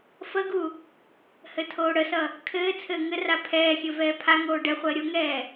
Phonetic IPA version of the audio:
fəɡu | hɘtʰoːɽəsʌ | kʰɘː t͡sʰɘːŋɘra pʰɛːxʲɘ vɛːpʰaŋoː ɖɛχʷəː ɾʲoŋɛː

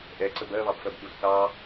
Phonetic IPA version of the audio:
ʔɛǀə bɜβɑbfɜb ɗusθɑ

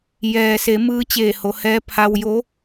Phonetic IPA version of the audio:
jɛː˩se˩˧ mɯː˧˥t͡ɕeː˧˩ho˩˧hɛː˧˥ pʰa˧wjo˧˥

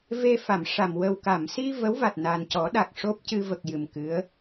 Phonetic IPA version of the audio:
ve˧fa˨˩˨mʂa˨˩m wə˨˩wka˨˩˨msi˧ və˧˥wva˨˩t̚ na˨˩ncɔ˨˩˦ ɗa˨˩k̚ ʂo˦˥p̚cɨ˧və˨˩k̚ jɨ˨˩mkɨ˧˥ə̯

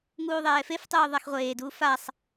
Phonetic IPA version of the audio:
ŋuːðˤɛːfeftˤuː ðˤaxʁʷeːduː fasˤ

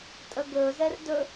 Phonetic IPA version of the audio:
tʼəɡɵzɛr dɵ

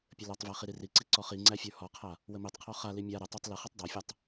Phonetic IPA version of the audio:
pʲəlɔtˤvæ χiɾiriǀi ǀɔχiŋ͡ǀæ fʲə˞hɔqʰa | wəmitˤqʰɔ χali mʲa ɾə tˤə˞tˤləχitˤ dˤafʲatˤ

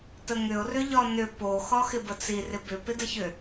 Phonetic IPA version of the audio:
təŋʏʊ̯ rʏʎɒnʏ po xɒxɪbət͡si rɪbʏ pɪdəçʏ

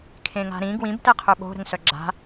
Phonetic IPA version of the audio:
kʰẽŋa̤ɾĩ ɡwĩb tɛqʰøɓo̤ ɾə̤ŋsœɡ͡ǁa̤

